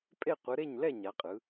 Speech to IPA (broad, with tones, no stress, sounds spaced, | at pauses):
pʼ e˥˨ qʷ ɯ˨˥ ɾ e˥˨ ɲ l ɛ˥˨ ɲ a˨˥ qʼ ɯ˨˥